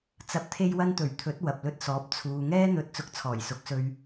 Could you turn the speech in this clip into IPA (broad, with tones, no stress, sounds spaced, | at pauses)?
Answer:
t͡s ɐ˨˥ p̚ t̪ʰ e˧ j w ɐ˧ n t̪ ɵ˨˩ ɥ t̪ʰ ɵ˨˥ t̚ w ɐ˨ p̚ l ɵ˧ t̚ s ɔː˨˥ p̚ t͡sʰ uː˨ ŋ ɛː˥ n̪ ɵ˧ t̚ t͡s ʊ˧ k̚ t͡sʰ ɔː˨˩ j s ʊ˨˥ k̚ s ɵ˧ ɥ